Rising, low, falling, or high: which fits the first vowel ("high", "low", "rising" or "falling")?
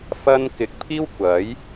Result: high